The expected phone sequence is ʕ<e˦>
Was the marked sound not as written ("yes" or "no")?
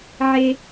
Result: no